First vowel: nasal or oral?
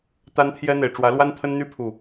oral